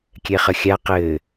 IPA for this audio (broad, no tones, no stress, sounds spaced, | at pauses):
kʲ ɛ χ ə xʲ a q ɘː